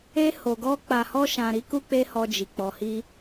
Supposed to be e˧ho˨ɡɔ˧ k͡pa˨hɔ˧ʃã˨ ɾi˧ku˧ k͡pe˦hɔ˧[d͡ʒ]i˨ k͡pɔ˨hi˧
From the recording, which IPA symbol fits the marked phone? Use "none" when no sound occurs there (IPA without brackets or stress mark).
d͡ʒ